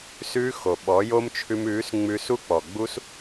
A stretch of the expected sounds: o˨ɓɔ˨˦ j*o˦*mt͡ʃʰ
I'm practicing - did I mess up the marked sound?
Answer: no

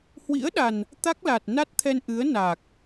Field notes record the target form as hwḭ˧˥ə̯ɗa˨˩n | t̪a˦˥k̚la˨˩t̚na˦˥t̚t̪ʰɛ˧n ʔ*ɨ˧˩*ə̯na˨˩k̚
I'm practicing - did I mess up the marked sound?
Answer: yes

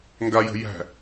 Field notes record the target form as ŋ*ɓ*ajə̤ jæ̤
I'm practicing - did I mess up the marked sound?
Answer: yes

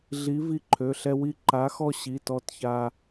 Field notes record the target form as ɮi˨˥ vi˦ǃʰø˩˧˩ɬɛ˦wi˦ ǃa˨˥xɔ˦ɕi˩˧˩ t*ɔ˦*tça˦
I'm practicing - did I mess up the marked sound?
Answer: no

